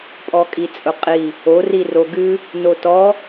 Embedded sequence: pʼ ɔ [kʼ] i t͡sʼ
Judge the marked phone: correct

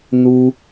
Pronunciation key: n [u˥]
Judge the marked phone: correct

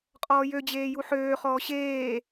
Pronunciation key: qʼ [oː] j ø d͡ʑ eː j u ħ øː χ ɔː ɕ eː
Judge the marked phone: incorrect: ɔː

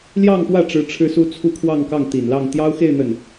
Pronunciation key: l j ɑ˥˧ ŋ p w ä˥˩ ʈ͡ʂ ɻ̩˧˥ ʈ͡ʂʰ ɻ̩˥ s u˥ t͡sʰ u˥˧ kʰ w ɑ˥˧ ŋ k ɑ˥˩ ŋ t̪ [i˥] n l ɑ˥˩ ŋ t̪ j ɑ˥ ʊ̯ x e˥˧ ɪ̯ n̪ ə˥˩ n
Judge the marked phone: incorrect: i˨˩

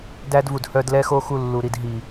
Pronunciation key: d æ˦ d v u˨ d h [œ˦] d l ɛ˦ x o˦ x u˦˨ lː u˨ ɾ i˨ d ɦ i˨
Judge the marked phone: correct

